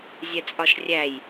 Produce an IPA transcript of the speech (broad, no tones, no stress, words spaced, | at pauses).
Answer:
zʲɛt͡sʼɒʃrʲæj